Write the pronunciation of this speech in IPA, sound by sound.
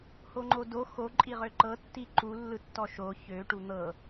h o ŋ͡ǃ o d o x o ǃʼ i ʁ ø ǃ ɤ tː i ǃ u lː ɯ tː ɔ ʃ o ç ø ʈ u n̪ ɤ

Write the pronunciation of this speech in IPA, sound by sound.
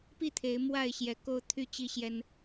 p i˥˨ t̪ʰ e˨˦ ɪ̯ m w a˥˨ ɪ̯ ɕ j ɛ˨˦ k o˦ ʊ̯ t̪ʰ y˥˨ t͡ɕ i˦ ɕ j ɛ˦ n

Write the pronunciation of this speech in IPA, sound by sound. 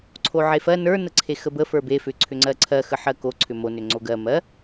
ǀʰ o ʕ e f ɜ n ə˞ n ə ǀʰ e x ə b ə f ə˞ b e f ʏ ǀʰ ʏ ŋ͡ǀ ɜ ǀʰ ɜ x ə ħ ɜ k o ǀʰ ʏ m o n ʏ ŋ͡ǀ o ɡ ɜ m ɜ

